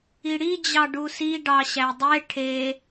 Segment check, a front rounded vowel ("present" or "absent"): absent